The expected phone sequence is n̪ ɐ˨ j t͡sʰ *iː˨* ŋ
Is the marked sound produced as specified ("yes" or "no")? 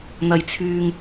no